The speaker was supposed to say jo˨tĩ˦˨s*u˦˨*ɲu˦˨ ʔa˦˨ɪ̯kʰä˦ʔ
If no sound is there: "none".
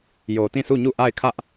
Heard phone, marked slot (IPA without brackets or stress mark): u˦˨